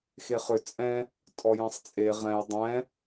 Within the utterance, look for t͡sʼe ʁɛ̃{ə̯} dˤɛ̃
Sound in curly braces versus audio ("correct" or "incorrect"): incorrect